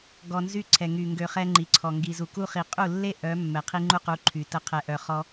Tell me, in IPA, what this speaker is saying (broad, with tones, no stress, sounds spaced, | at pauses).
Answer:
ɡ ɔ˧ n z y˦ ǀʰ ɛ˨ ŋ y˨ ŋ ɡ ø˧ χ ɛ˦ ŋ͡ǃ i˨ ǀʰ ɔ˨ ŋ ɡ i˨ z u˨ k u˦ χ i˨ qʼ u˦˨ lː e˦ ʔ œ˨˦ mː ɛ˨ qʰ i˦ ŋ͡ǃ u˦ q u˨˦ ǃʰ y˨ t ə˧ qʰ ɛ˨ ʔ œ˨ χ ɔ˧